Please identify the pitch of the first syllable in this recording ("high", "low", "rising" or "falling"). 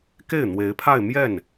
falling